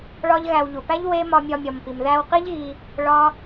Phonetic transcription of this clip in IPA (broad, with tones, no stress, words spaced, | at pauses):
ɭɒ˦ʎɣæ˧w ʎu˨pæ˦ʎ we˦ mɒ˧mʲɒ˧mʲɒ˨mpi˨m ðæ˧wqi˦ʎɣi˧ | ɭɒ˦